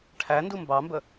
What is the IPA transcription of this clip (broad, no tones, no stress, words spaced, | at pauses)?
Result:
ʈʰæ ndumbɑmbə